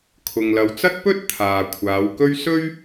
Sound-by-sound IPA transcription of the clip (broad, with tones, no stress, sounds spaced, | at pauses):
kʰ ʊ˨ ŋ l ɐ˨˧ w t͡s ɐ˥ t̚ p ɵ˥ t̚ t̪ʰ aː˨ kʷʰ aː˨˧ w k ɵ˥ ɥ s ɵ˥ ɥ